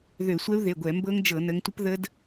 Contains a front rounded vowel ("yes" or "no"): yes